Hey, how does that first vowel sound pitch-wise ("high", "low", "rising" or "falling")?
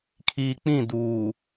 low